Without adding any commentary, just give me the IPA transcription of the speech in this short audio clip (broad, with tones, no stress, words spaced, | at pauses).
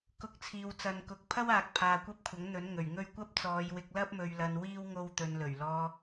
kʊ˧k̚t͡sʰiː˨w t͡sɐ˨nkʊ˨k̚pʰɐ˥waː˨k̚ pʰaː˨kʷɐ˥p̚kʷʰɐ˨˥ŋ n̪ɵ˨˥nŋɵ˨˩ɥŋɵ˥ɥ kʷɐ˥p̚t͡sɔː˨˧jwɪ˧k̚ lɐ˥p̚ mɵ˧ɥlɐ˧nwiː˥w ŋo˥wt̪ɵ˧n lɵ˨˩ɥlɔː˧